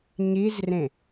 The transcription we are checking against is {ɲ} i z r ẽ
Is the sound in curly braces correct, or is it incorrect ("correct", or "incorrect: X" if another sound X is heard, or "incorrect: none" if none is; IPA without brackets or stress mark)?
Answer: correct